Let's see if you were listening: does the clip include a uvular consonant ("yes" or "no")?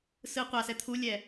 yes